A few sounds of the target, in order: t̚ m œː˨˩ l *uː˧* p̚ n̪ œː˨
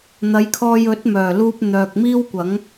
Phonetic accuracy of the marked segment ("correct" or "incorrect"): correct